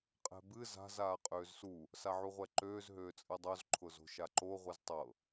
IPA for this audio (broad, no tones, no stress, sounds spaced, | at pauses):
qʼ ɛ̤ b ɨ z a̤ z aː qʼ øː z s u | s a ʕ u ʁʷ ɛ ǃ øː z ɦ øː t͡sʼ ɨ dˤ o z ǃʰ ʊ z o̤ ʃ a ǃ o ʁʷ ɨ z tˤ ɤ